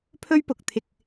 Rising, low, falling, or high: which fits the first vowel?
high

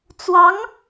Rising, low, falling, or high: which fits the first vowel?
rising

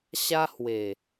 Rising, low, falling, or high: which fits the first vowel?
high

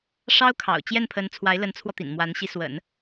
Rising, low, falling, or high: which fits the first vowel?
high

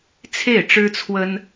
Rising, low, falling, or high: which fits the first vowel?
falling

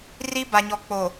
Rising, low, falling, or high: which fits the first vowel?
high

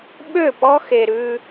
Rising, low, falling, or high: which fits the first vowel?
falling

